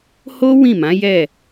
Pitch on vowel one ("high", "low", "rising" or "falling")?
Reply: high